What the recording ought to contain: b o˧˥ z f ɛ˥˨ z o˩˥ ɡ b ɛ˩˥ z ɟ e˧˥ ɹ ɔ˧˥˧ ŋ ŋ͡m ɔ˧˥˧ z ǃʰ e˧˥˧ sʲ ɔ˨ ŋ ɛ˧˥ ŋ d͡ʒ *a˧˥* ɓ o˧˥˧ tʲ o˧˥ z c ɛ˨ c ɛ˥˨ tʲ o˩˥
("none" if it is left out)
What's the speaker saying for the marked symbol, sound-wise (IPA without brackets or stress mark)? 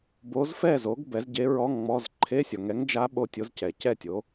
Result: a˧˥